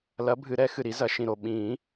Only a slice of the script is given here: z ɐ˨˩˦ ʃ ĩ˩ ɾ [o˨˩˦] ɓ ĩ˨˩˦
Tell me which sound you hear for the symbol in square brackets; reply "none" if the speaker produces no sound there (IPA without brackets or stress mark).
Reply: o˩